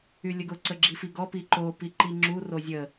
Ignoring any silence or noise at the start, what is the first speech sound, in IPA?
y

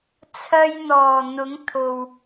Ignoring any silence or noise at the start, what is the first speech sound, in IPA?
t͡sʰ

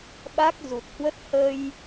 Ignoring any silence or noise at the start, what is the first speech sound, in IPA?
ɓ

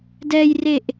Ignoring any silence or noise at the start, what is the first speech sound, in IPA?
d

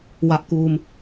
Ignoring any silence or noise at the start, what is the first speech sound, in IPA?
w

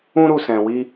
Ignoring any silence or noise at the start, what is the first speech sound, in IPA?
ũ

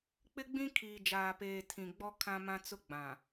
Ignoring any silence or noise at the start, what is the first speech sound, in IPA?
k͡p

